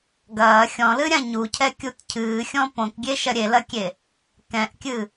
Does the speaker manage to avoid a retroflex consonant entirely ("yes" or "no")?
yes